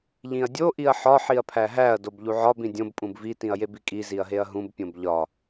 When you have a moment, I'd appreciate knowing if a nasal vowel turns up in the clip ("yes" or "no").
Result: yes